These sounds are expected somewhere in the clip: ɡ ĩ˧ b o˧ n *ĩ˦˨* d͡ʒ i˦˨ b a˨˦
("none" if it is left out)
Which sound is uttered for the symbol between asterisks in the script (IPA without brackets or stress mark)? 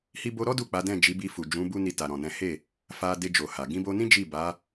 ĩ˦